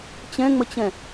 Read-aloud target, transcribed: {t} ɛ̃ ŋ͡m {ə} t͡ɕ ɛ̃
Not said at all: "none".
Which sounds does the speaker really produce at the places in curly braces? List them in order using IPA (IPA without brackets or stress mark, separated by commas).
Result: t͡ɕ, ə